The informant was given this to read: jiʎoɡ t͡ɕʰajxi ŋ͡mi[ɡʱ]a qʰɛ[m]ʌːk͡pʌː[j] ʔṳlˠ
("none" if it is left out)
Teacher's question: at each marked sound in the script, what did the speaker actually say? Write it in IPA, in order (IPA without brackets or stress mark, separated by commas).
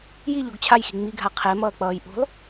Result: ɡʱ, m, j